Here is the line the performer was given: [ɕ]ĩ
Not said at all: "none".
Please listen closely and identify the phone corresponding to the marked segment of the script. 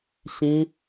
ɕ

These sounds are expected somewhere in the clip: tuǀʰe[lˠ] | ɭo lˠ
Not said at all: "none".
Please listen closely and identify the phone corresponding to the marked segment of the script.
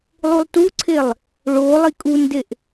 lˠ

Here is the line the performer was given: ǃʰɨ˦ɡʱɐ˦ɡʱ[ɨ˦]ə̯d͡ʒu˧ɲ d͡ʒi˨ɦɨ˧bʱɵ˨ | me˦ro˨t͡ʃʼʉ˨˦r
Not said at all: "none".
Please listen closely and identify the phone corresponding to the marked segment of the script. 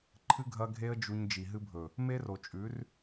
e˦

